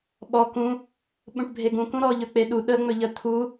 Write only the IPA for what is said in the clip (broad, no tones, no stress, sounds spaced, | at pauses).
ɓ ɔ k ũ | ɓ ũ ʈ bʱ e ɡ ũ k ũ ɾ ɔ ʎ ɵ k͡p e ɗ u ɗ ə ŋ͡m ɵ ʎ ə t̪ʰ u